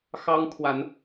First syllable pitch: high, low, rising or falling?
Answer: high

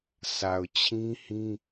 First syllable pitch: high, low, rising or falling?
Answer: low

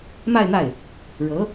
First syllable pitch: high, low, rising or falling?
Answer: falling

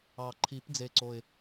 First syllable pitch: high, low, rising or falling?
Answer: low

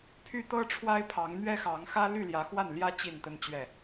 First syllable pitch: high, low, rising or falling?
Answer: high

